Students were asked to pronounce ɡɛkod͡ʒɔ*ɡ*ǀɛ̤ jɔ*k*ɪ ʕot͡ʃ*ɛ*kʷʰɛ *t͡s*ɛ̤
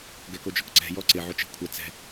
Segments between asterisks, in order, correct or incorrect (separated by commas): incorrect, incorrect, incorrect, correct